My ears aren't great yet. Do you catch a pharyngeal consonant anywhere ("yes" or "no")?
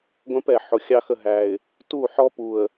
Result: yes